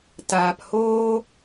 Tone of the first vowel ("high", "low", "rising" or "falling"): low